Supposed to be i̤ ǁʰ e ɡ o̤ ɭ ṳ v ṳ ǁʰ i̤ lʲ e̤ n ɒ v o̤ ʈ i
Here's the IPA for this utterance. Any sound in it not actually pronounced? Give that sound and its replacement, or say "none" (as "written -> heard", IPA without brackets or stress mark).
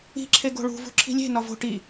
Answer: none